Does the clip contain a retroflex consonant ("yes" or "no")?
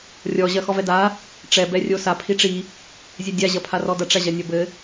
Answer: yes